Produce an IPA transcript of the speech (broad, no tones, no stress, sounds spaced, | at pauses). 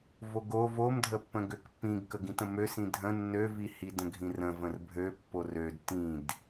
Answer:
v o ɡ o v o m dʱ ə pː ə̃ ɡ ø k pː ĩ ɡ k ə ɡ ĩ t ə̃ m ø s ĩ dʱ ə̃ nː ø v i h i d ə̃ ɡʱ ĩ r ə̃ v ə̃ r bʱ ø pː o r ø d t ĩ d